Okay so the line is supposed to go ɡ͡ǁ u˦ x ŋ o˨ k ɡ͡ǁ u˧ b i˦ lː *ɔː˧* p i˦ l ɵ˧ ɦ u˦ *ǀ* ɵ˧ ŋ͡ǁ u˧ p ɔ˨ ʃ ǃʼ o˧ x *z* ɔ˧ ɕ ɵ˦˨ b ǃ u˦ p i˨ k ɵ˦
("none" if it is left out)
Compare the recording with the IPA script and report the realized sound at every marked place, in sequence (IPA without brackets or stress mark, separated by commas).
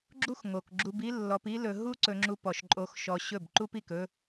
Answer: ɔ˧, ǀ, ʃ